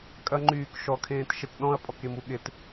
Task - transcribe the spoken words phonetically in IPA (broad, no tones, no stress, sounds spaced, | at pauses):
kʼ ɐ ŋ͡ǃ yː k ʃ ɔ kʰ ẽː t ʃ e t ɗ ɔ̃ ɐ̯ pʼ ɔ k e m u ɠ ɪ t